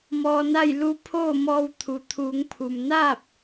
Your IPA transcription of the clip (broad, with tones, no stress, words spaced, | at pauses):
mɔː˧na˥˨j lu˧˥ pʰoː˥˨mɔː˧wt̪ʰu˩ t̪ʰuː˩˧ŋ pʰu˩mnaː˥˨p̚